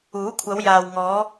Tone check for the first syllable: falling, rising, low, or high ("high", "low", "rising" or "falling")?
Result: rising